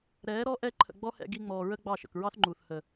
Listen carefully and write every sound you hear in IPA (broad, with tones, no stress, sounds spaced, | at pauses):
ɾ ɛː˨˦ ɾ ɔ˦ ʔ ɛ˧ ǃʰ ə̰˨ ɡ͡b ɔ˦ h ɛ̰˧ ɡ i˧ ŋ͡m ɔː˨ ɹ ə˦ ɡ͡b ɑ˦˨ ʃ ə̰˨ k ɹ ɑ˦ θ ŋ͡ǃ uː˨ θ h ə˨